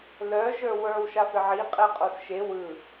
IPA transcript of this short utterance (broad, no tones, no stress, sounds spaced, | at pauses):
l œ ʒ ə˞ w ə˞ w ʃ a f ɪ ʕ i qʼ ɛ qʼ o s ʃ e w ɯ